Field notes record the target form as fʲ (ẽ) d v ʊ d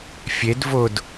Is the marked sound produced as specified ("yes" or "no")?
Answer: no